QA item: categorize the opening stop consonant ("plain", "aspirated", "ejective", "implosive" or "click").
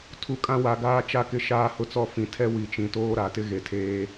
aspirated